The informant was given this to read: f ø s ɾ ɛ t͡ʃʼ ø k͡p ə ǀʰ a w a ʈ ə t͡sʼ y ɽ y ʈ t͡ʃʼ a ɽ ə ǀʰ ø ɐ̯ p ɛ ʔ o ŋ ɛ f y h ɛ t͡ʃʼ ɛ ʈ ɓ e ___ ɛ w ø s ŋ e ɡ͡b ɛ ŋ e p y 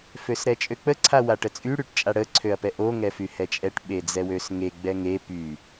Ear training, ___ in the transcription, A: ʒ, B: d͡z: B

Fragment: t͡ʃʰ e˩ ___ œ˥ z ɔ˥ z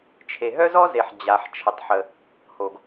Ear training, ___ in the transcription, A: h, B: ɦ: B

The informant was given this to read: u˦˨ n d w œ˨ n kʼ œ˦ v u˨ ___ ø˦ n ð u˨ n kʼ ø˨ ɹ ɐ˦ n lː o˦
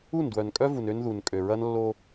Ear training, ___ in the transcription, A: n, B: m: A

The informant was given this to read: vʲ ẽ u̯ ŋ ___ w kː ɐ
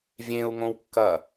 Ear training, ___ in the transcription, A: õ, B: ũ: A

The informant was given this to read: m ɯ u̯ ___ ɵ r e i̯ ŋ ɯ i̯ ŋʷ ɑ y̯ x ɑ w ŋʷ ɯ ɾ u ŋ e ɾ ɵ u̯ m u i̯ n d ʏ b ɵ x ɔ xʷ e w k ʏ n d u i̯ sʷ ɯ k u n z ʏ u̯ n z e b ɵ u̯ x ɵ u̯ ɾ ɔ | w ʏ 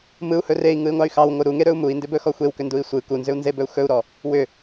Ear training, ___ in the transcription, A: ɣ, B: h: B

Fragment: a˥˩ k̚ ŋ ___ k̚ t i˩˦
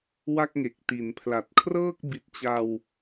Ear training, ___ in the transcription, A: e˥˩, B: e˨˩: B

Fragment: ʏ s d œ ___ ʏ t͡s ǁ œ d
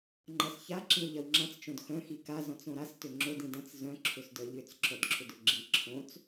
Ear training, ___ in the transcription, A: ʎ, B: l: A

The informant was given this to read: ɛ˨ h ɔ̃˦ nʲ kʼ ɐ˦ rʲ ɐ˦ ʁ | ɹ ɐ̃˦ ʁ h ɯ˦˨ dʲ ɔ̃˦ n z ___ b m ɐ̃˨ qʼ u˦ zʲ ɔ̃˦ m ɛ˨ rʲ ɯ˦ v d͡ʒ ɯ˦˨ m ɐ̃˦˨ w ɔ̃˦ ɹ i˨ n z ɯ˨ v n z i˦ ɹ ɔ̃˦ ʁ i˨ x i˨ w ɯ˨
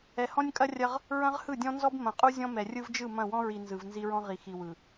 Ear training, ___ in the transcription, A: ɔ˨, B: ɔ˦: B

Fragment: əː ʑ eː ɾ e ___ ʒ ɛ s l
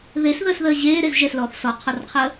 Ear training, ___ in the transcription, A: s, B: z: B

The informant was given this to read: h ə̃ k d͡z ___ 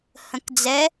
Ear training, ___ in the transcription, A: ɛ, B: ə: A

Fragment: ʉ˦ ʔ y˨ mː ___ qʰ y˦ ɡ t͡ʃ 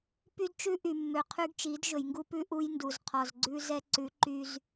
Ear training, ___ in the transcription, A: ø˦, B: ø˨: B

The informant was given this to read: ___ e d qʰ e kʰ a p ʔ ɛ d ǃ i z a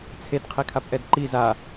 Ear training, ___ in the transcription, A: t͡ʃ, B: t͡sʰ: B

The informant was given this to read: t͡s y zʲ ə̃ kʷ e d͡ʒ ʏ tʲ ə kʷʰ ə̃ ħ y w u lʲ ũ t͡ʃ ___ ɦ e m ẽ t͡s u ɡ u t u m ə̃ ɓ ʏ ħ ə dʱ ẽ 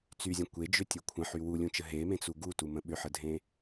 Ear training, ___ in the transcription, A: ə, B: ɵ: A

